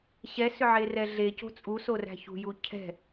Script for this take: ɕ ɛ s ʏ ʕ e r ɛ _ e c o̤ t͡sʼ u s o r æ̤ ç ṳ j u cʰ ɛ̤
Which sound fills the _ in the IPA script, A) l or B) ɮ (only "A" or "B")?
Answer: B